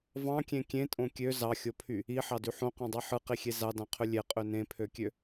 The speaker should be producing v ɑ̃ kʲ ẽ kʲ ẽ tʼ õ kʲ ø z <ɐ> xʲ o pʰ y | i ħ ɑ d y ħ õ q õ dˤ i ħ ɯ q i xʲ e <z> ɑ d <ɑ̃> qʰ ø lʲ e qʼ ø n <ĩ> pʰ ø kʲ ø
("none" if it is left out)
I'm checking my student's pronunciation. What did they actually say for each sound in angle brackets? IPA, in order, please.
ɑ, z, ɑ̃, ẽ

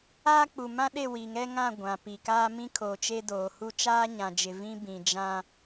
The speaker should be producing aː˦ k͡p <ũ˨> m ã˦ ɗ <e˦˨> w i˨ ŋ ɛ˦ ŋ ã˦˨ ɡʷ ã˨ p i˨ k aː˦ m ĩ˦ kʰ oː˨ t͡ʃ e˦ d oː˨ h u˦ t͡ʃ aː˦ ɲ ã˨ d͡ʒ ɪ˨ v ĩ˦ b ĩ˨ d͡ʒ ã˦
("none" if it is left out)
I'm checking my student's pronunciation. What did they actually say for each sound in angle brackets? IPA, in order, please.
u˨, e˦˨

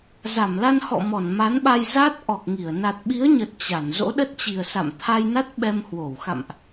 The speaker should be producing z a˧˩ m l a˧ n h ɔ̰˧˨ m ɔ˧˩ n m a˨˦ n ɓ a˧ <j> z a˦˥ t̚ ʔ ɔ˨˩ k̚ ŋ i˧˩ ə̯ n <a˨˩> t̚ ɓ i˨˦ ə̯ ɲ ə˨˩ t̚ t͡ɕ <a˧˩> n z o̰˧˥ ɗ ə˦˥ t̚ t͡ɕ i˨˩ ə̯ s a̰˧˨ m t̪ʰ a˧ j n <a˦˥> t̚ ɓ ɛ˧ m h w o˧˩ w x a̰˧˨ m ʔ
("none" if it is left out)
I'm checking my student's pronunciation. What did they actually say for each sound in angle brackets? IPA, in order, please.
j, a˨˩, a˧˩, a˦˥

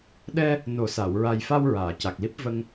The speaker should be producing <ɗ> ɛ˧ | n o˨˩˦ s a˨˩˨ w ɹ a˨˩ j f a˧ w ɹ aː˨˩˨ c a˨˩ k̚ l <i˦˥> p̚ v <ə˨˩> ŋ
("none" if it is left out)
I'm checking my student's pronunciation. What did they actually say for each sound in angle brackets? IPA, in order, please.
ɗ, i˦˥, ə˧

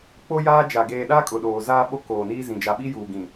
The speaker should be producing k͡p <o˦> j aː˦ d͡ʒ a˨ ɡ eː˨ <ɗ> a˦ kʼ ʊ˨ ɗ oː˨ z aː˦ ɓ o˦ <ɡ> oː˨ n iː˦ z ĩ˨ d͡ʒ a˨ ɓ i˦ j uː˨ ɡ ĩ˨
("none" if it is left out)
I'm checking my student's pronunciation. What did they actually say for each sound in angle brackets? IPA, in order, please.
o˦, ɗ, k

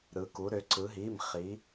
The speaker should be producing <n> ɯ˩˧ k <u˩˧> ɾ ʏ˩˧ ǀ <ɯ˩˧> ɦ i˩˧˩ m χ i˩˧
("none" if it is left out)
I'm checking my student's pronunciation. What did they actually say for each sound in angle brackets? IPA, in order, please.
ɾ, u˩˧, ɯ˩˧

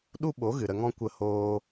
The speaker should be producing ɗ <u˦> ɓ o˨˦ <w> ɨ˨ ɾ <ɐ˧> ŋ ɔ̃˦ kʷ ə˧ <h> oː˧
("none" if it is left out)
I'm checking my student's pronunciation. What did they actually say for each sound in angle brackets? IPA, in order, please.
u˦, ɣ, ə˧, h

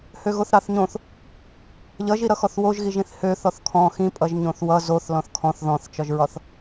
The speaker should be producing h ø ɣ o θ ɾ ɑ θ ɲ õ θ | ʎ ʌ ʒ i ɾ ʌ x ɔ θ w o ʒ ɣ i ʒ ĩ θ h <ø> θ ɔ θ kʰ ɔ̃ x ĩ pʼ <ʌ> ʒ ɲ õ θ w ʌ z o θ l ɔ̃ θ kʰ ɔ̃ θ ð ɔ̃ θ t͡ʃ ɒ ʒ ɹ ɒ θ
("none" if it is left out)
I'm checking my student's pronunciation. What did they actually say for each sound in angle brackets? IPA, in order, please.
ø, ʌ

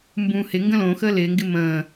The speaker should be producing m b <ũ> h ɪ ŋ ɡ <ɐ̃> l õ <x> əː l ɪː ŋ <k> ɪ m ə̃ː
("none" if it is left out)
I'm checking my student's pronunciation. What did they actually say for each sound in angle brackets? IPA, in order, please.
ũ, ə̃, x, ɡ

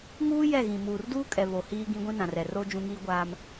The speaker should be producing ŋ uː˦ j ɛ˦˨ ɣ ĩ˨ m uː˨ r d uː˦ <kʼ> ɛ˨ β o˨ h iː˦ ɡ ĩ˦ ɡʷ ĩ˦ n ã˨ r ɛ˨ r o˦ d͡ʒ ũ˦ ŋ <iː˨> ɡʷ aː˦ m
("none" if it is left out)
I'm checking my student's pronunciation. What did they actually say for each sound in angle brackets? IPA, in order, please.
kʼ, iː˦

